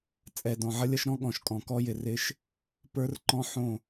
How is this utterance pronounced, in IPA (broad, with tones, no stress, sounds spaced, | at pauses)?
t͡sʼ ɛ˨ d ɔ̃˨ ʕ ʌ˦ lʲ ʌ˦ ʃ ɾ ɔ̃˦ ɠ ɔ̃˨ ʃ kʼ ɔ̃˨ k ɔ˦ j ɪ˨ r ɪ˦ ʃ | p ə˞˦ r ǃ ɔ̃˦ ħ õ˦˨